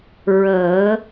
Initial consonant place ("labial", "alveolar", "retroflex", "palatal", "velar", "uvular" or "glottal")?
alveolar